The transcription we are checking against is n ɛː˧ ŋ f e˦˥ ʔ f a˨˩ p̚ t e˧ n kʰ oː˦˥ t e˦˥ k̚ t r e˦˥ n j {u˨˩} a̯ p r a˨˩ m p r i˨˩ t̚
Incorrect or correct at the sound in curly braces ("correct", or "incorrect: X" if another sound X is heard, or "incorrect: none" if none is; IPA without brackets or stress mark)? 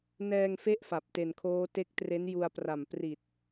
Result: incorrect: u˧